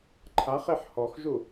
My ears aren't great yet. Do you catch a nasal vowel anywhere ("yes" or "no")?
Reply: no